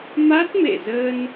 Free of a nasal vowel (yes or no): yes